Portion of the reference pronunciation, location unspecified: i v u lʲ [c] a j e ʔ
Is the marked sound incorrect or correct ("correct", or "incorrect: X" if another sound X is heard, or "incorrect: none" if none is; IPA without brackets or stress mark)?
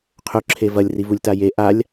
incorrect: t